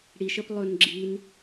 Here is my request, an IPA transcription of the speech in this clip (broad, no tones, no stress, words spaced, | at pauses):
ɽiʃəp lˠɵnɡ͡ǁin